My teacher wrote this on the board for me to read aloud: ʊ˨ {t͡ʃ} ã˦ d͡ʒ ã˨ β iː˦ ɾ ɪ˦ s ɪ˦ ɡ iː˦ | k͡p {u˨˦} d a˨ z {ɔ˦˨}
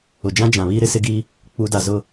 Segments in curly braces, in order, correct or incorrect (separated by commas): incorrect, correct, incorrect